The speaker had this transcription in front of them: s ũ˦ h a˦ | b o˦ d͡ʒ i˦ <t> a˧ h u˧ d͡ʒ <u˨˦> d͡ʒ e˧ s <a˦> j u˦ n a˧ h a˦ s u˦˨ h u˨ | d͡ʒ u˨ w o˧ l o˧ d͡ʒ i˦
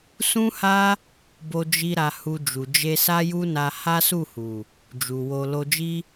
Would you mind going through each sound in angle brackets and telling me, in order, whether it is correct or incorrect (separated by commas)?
incorrect, incorrect, correct